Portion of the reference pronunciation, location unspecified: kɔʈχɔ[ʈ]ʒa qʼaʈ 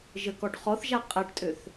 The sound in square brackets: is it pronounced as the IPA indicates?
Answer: no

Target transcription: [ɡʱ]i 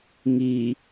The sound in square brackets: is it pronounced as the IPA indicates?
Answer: no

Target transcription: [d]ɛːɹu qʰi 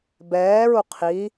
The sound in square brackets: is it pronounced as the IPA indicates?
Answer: no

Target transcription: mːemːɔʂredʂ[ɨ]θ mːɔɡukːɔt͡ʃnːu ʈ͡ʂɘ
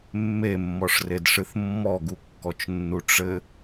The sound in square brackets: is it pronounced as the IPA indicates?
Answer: yes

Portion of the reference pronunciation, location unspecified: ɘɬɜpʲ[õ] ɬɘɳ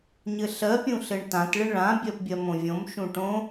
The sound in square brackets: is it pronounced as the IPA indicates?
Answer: no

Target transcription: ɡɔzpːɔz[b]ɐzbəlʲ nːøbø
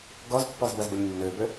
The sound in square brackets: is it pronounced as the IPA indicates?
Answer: yes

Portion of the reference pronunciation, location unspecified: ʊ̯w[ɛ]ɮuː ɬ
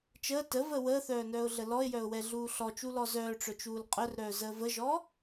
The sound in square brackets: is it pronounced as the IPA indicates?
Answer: yes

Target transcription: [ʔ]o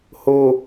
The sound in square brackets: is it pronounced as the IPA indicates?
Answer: no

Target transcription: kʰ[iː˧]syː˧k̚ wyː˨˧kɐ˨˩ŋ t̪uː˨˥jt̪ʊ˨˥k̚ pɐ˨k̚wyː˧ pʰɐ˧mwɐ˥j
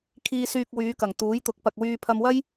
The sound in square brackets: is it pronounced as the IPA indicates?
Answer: yes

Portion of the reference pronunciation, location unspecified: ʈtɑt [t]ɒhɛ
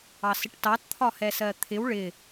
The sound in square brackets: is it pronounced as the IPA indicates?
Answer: no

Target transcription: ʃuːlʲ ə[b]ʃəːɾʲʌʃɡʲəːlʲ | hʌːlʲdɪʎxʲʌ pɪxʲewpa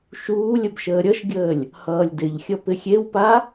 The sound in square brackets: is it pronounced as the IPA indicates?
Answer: yes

